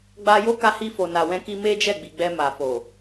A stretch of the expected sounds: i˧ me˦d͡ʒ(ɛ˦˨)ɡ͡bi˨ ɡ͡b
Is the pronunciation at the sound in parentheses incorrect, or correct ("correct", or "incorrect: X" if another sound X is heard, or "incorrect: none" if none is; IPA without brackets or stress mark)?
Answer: correct